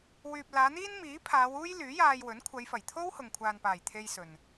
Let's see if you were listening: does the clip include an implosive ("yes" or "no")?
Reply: no